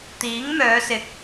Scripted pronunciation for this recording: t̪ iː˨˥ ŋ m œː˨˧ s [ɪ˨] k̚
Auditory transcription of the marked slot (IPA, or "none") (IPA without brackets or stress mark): ɪ˨